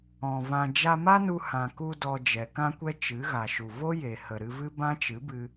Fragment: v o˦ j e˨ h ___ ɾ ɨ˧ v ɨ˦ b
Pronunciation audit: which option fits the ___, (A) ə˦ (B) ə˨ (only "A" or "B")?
B